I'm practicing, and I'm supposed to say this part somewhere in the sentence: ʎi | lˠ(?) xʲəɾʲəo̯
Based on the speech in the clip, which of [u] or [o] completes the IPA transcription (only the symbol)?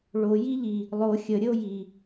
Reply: o